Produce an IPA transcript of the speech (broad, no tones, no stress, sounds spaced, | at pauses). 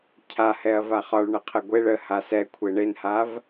cʰ a h ɛ ɐ̯ v a χ ɒ ɭ ɳ ə qʰ ə ɡʷ e ɭ ə h a s ɛ kʷʰ e ɳ e n h a v